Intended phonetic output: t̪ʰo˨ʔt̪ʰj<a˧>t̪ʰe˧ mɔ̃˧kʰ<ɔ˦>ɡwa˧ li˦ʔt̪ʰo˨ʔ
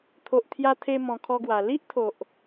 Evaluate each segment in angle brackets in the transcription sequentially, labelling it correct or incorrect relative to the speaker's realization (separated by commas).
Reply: correct, correct